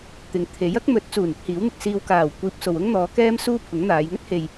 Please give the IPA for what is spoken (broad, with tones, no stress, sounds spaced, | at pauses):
t̪ ɪ˨ ŋ t̪ʰ e˨˥ j ɐ˥ k̚ m ɵ˨˥ t̚ t͡s uː˨˩ n ɪ˥ k̚ h iː˨˥ w n̪ ɪ˨ k̚ s iː˨ w k aː˨˩ w kʷ iː˧ p̚ s o˨ w ʊ˥ ŋ n̪ ɔː˨˧ k ɛː˥ m s uː˥ pʰ ʊ˨˥ ŋ n̪ aː˨˧ j ŋ ɵ˥ t̚ h e˨ j